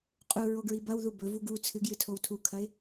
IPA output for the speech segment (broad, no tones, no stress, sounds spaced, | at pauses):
qʼ u ɹ o ɡ ɹ i b ɐ w ð u b ɵ v u ɡ u t͡sʰ ɨ ɡ j ɨ tʰ o w tʰ u kʰ ɐ ɪ̯